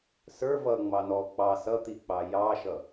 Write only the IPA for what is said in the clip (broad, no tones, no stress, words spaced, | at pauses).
sə˞ vʌŋ͡mɑ nɔ k͡pɑ sʌt̪ik͡pɑ jɑʃʌ